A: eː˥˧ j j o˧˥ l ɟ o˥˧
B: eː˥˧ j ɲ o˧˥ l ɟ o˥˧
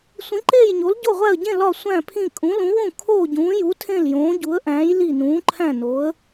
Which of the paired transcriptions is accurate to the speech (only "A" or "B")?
B